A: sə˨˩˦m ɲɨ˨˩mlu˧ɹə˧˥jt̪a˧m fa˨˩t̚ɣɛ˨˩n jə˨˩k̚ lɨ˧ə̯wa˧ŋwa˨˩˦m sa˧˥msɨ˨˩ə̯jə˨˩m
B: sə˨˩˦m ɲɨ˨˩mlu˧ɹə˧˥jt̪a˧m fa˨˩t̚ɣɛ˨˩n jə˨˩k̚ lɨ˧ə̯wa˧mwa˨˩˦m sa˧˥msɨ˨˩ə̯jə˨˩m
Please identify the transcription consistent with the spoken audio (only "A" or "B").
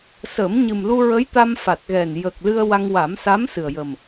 A